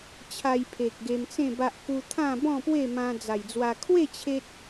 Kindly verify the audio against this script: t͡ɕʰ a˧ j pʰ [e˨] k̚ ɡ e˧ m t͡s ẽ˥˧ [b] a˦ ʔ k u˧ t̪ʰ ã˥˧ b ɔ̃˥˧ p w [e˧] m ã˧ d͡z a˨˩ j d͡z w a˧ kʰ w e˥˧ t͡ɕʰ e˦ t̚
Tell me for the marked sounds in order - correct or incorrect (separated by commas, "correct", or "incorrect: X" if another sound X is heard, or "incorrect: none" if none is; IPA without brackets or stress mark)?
correct, correct, incorrect: e˥˧